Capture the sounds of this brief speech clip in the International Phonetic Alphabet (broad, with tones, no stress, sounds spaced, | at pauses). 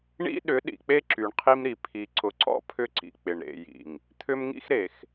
ɳ ḭ˦ ɗ ʏ˨˦ ɗ ḭ˨ k͡p e˦ ǁ y˨ ɳ qʰ i˦ m ɾ i˨ pʰ i˨ ǀ ʊ˨ ǀ ɔ̰˦ pʰ ʏ˦ ǀ ḭ˨ k͡p ɪ˨ ɳ ɾ ḛ˨ j ḭ˨ ŋ | t̪ʰ ʏ˦ m ŋ ḭ˦ x ɾ e˨ x